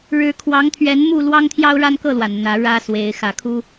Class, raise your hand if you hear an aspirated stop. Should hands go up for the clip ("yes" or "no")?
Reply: yes